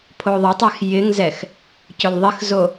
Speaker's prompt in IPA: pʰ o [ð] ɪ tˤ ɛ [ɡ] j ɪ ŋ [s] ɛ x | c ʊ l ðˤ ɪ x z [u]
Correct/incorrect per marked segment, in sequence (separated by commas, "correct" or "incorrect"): incorrect, incorrect, incorrect, incorrect